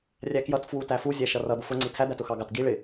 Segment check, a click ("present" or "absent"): present